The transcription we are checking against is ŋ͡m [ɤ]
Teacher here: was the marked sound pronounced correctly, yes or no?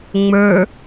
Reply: no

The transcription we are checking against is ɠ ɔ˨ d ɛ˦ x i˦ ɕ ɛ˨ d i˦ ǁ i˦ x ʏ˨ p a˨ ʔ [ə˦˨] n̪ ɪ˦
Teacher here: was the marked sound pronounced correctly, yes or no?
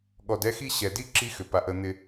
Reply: yes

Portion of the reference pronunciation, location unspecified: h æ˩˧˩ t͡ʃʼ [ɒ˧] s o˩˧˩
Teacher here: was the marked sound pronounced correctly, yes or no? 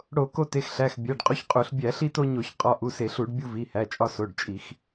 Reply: yes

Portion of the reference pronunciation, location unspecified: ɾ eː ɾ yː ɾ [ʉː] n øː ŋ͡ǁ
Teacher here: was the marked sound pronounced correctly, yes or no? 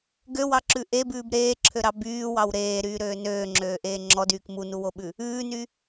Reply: no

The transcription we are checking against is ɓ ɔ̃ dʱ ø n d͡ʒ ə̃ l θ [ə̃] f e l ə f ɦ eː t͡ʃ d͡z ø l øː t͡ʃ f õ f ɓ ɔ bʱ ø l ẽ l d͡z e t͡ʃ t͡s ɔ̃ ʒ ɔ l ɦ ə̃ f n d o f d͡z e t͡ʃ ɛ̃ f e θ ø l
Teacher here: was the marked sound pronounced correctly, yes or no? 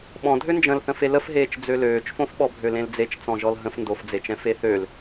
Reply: yes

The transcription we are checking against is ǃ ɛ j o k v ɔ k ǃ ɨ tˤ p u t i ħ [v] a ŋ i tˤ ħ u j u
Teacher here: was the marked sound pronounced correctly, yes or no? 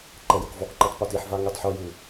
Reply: yes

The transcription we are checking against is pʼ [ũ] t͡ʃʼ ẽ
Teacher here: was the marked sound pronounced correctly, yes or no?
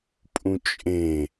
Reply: yes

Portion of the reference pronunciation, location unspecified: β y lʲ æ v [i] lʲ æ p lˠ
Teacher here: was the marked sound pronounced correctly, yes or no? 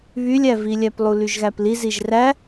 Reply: yes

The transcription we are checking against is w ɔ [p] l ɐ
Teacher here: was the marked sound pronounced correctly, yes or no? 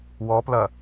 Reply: yes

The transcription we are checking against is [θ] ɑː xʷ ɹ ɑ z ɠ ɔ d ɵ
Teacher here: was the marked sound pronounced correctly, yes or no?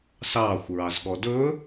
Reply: no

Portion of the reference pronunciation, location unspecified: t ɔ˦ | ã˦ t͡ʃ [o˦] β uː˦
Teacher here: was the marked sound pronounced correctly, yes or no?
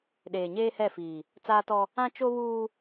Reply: yes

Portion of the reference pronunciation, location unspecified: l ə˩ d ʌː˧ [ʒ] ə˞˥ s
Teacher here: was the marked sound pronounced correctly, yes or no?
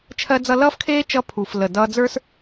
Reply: no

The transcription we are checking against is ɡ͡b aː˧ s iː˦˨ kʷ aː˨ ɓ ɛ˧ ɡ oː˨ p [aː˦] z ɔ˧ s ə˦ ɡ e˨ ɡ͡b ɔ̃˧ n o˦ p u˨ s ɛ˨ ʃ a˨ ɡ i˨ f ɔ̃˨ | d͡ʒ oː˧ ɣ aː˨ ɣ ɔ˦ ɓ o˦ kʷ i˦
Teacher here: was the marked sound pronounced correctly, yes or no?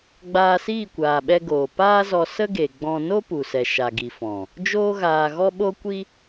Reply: yes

